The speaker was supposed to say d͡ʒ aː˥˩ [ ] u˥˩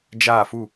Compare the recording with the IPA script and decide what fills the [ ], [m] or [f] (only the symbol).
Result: f